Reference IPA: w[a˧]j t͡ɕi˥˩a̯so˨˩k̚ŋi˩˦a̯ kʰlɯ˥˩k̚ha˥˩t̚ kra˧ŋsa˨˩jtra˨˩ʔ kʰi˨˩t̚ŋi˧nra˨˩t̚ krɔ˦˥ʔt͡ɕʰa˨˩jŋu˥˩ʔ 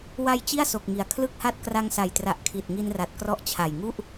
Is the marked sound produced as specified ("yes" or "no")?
yes